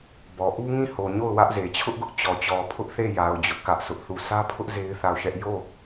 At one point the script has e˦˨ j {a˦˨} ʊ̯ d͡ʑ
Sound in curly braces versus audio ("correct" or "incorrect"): incorrect